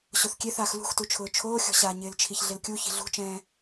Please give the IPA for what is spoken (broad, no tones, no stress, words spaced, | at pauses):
ɕoθkʲeθaːx lṳxtut͡ʃʰʊː t͡ʃʰoːxʲɔ̤ɕaː ɲɪːlt͡ʃʰiçɮɪlkʲu çi̤ɮṳt͡ʃɛ̃ː